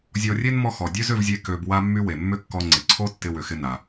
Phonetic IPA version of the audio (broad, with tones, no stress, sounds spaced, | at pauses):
zʲ ɔ˧ rʲ e˥ n m ɔ˥ x ɔ˩ dʲ ø˥ z ʏ˧ v zʲ e˧ k ø˧ b w a˥ mː y˥ w e˩ mː ʏ˥ kː ɔ˧ ŋ͡ǀ ɪ˩ ǀʰ o˥ tː ɪ˧ w ʏ˩ x ɪ˧ n a˩